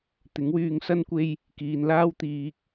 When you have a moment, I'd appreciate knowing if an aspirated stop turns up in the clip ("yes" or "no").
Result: no